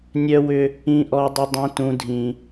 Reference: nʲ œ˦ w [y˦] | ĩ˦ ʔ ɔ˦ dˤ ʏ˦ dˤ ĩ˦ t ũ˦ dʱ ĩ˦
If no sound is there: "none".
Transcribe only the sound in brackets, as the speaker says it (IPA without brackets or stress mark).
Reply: ʏ˦